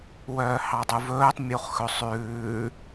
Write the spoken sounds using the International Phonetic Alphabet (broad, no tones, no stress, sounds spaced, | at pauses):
w œː h ɑ dˤ u v ɵː tˤ mʲ u χ x ɵ sˤ ʉː